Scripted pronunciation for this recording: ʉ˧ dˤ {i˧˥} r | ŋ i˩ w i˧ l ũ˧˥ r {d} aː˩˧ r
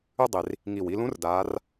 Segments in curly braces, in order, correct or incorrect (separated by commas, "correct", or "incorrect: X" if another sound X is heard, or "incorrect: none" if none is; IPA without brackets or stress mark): incorrect: i˩, correct